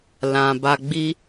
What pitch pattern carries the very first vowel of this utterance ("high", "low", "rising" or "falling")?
low